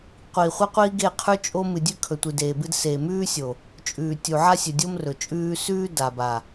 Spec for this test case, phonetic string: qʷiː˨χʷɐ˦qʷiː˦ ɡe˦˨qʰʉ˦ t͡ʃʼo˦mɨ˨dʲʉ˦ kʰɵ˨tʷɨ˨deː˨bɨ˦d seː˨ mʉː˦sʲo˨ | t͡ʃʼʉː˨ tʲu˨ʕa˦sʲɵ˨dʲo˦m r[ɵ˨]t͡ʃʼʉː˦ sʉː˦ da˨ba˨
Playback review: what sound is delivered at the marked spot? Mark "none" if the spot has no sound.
ɵ˨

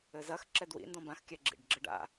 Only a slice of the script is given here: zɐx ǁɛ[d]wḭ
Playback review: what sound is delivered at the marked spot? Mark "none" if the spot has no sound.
d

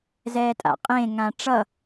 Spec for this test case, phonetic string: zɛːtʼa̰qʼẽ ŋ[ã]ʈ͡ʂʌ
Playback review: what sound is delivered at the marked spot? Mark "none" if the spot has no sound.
ã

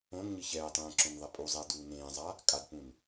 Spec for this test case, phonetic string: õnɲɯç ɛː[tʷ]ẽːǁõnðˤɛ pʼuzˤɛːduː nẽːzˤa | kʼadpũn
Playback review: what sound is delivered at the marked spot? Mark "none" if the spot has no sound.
tˤ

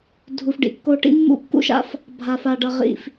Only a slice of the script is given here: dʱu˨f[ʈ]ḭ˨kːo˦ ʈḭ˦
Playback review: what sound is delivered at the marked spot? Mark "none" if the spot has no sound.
ɖ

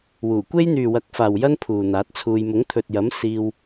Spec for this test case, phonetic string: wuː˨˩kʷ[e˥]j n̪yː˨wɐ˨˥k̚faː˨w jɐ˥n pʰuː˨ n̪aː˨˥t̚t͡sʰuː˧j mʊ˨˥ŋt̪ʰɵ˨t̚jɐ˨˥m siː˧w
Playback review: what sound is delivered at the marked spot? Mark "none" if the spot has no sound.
e˥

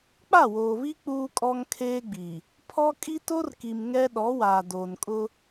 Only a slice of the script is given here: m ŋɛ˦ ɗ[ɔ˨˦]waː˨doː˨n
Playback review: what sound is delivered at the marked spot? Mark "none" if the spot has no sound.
ɔ˨˦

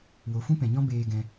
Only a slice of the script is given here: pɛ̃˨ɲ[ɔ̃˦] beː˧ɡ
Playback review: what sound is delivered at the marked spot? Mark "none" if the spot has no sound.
ɔ̃˦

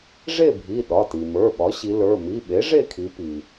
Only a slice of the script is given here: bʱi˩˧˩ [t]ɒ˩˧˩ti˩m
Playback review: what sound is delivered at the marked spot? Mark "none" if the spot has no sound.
ɗ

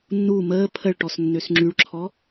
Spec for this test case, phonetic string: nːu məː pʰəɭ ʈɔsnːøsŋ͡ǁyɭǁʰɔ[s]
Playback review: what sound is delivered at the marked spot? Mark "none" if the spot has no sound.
none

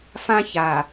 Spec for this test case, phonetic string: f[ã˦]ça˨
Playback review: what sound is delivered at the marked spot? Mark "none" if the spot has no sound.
ã˦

